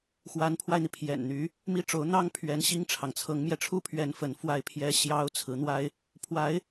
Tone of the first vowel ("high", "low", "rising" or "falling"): rising